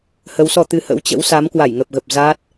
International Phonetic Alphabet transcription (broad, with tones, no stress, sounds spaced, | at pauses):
h ə˨˦ w s ɔ˧ t̪ ɨ˧ h ə̰˧˥ w t͡ɕ ə̰˧˥ w s a˨˦ m k w a˧˩ j ŋ ə˨˩ p̚ ɣ ə˨˩ p̚ z aː˦˥ t̚